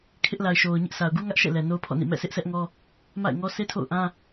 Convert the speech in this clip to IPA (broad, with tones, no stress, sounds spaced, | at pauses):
kʰ ɪ˦ ʔ l a˨ ɪ̯ ʃ o˨ ʊ̯ ɲ ɪ˦ ʔ s a˨ ʊ̯ ɡ u˦ ŋ ä˦ ʔ ʃ ɛ̰˦˨ l ɛ˨ n o˦ ʊ̯ pʰ ɔ̰˦˨ n ḭ˦˨ m ɛ̰˦˨ s ɪ˦ ʔ sʰ ɛ˦ ʔ ŋ ɔ˦ | m a̰˦˨ ɪ̯ ŋ ɔ˦ sʰ e˦ tʰ o̰˦˨ ʊ̯ ʔ ã˦